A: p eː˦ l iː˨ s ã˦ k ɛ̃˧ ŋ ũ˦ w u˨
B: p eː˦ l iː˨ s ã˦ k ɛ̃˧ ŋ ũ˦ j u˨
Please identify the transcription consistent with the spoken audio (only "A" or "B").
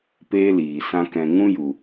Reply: B